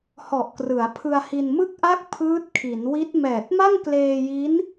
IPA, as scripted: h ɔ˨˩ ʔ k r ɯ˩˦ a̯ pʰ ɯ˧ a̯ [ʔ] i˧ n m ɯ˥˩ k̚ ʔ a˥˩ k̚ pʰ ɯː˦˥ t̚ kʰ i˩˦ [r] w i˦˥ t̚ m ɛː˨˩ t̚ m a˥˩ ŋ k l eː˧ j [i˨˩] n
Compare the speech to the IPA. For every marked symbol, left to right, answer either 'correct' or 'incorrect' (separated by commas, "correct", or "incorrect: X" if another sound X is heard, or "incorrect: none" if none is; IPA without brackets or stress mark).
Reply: incorrect: h, incorrect: n, incorrect: i˦˥